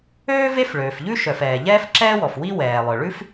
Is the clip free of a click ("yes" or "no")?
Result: no